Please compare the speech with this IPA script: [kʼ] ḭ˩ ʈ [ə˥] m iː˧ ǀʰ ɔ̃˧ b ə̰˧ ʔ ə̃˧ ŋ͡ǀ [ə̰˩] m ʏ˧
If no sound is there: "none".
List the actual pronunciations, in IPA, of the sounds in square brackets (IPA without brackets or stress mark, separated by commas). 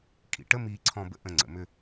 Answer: kʼ, ə˥, ə̰˩